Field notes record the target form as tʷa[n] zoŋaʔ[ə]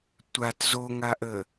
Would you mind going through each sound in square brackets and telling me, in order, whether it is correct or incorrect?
incorrect, correct

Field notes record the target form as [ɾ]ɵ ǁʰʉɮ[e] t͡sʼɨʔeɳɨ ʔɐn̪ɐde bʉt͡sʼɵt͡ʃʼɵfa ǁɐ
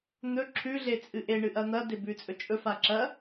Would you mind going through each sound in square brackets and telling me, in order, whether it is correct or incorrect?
incorrect, correct

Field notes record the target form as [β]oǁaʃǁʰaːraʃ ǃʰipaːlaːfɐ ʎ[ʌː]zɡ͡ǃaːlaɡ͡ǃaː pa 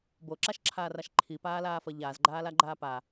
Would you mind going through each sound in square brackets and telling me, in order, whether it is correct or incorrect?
incorrect, incorrect

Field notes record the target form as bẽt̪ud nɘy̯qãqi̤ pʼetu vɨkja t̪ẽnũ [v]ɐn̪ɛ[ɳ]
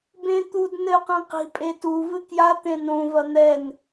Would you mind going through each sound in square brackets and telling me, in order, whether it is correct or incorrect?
correct, incorrect

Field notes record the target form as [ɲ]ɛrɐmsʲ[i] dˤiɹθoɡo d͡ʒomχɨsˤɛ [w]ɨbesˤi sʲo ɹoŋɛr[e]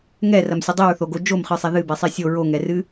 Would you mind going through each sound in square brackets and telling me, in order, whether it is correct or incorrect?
incorrect, incorrect, incorrect, incorrect

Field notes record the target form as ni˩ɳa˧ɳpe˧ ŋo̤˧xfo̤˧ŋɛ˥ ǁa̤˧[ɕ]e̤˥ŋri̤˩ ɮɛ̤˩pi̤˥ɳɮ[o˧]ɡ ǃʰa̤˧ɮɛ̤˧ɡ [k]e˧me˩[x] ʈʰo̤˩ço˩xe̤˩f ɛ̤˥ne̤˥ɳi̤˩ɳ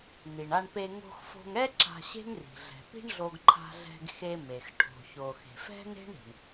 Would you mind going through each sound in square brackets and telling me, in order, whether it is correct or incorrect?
correct, correct, incorrect, correct

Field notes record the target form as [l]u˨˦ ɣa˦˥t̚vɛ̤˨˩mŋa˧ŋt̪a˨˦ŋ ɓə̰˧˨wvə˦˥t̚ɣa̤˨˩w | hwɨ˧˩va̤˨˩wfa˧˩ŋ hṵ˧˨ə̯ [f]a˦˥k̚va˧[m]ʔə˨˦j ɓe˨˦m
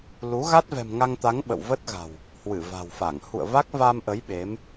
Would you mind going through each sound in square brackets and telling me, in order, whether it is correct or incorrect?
correct, incorrect, correct

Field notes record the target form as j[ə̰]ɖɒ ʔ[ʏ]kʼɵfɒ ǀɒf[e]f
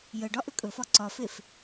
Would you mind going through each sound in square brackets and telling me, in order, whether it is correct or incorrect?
incorrect, correct, correct

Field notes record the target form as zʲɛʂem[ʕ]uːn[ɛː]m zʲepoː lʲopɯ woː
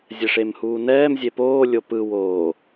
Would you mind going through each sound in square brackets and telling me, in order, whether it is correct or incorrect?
incorrect, correct

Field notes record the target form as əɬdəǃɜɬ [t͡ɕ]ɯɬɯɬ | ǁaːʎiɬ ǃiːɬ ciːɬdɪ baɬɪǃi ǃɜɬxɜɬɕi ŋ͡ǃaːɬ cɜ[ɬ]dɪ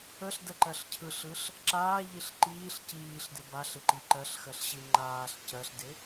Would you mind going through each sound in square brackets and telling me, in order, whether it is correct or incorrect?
incorrect, correct

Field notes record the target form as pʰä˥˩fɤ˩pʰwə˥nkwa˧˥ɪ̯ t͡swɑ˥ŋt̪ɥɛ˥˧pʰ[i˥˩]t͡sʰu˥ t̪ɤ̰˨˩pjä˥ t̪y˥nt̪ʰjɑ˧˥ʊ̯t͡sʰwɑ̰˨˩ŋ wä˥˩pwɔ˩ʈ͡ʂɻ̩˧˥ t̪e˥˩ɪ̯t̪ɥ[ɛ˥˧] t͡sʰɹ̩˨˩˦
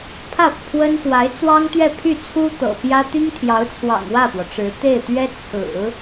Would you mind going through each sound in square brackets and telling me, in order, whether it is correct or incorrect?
incorrect, incorrect

